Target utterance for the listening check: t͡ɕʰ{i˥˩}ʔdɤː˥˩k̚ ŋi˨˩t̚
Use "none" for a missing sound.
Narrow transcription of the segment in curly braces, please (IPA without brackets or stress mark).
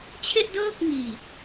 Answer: e˥˩